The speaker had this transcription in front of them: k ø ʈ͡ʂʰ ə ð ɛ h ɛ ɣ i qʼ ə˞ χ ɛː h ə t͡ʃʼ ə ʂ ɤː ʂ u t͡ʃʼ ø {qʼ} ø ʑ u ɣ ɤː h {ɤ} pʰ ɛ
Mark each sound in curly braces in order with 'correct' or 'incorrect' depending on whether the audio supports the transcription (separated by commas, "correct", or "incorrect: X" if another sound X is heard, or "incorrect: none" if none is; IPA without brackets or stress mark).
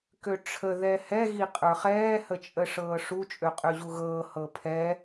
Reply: correct, correct